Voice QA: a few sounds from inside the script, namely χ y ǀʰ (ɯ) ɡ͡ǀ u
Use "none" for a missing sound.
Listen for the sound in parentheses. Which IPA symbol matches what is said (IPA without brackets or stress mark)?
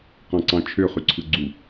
ɯ